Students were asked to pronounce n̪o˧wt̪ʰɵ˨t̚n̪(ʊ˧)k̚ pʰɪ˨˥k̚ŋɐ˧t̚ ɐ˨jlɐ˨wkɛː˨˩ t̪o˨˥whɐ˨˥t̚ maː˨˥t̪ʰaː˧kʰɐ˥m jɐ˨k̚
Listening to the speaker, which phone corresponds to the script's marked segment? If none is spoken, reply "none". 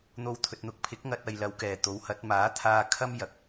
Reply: ʊ˧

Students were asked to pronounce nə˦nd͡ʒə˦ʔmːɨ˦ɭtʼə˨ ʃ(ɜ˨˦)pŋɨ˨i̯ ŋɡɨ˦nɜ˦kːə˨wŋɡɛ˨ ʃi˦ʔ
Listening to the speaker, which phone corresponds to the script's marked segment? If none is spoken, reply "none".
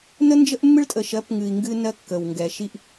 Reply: ɜ˨˦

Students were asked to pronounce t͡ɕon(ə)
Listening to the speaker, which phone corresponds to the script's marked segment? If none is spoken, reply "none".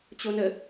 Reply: ə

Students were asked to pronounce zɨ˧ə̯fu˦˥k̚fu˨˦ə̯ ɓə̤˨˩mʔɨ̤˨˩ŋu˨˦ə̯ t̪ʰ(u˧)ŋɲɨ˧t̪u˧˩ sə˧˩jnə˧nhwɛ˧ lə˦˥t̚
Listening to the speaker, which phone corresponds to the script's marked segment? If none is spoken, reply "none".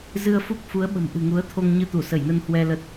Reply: o˧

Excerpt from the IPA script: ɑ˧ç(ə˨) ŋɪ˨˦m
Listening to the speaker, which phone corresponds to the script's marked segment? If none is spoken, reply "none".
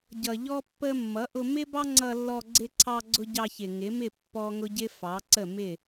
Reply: ɪ˨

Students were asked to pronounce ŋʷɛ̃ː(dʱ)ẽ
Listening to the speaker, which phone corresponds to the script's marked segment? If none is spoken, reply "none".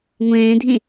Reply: dʱ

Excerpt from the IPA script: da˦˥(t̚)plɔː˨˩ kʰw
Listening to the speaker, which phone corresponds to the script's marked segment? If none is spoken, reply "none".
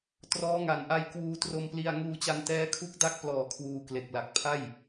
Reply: k̚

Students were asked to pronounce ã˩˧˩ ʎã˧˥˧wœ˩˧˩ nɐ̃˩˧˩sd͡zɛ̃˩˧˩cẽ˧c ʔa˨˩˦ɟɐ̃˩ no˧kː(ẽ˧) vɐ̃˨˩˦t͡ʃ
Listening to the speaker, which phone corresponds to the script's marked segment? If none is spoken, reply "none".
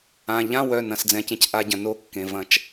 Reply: ẽ˩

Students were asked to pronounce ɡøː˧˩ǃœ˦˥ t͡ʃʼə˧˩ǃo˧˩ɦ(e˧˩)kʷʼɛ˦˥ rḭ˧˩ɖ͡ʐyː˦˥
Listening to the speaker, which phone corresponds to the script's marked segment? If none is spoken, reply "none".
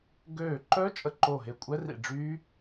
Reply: e˧˩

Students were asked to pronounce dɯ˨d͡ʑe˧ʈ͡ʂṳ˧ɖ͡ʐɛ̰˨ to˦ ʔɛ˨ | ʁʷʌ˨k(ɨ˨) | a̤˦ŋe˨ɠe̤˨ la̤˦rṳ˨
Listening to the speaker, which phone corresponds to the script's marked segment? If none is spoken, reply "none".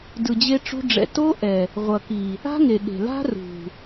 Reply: i˨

